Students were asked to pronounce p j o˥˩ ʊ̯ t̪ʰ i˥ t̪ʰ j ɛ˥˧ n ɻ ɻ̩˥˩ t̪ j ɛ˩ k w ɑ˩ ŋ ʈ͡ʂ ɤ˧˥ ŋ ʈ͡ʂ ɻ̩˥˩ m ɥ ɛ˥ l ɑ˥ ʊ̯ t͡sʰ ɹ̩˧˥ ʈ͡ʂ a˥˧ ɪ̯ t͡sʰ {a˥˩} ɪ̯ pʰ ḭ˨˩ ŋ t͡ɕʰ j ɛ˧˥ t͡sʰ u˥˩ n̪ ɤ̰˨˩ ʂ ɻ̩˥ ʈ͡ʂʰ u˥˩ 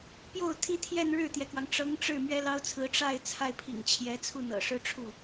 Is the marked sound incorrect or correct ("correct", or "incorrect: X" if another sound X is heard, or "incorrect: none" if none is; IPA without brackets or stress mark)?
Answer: correct